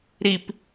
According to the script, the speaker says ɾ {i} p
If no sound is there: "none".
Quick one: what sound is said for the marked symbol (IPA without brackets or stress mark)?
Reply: i